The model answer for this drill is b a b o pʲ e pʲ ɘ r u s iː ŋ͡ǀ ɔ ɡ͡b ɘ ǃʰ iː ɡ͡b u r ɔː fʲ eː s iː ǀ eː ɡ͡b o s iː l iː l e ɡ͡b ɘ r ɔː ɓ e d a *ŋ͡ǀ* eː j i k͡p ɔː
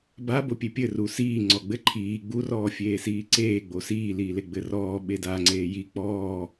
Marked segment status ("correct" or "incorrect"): correct